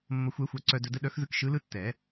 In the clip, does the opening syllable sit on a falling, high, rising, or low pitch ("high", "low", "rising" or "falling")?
low